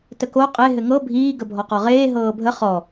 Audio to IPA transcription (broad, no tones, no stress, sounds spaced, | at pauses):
t ə k o qʼ e ɦ ɘ ŋ ɤ bʱ iː ɡ ə bʱ ɔ q ɔ ʁ eː ɦ ɤː bʱ ə χ ɔ